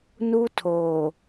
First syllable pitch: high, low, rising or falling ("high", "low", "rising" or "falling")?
high